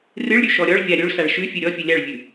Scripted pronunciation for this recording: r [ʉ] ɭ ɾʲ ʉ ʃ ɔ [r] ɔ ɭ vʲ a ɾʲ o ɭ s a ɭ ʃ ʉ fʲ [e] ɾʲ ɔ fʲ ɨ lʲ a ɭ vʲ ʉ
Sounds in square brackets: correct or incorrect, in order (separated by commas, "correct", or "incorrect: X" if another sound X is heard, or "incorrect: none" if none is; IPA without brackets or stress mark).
incorrect: ɨ, incorrect: ɾʲ, incorrect: ɨ